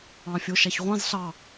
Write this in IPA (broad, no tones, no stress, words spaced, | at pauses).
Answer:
ɑ̃fʲoʃaçʁʷɑ̃z ɬɑ